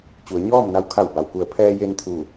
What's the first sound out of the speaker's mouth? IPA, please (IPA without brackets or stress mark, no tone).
t͡ɕ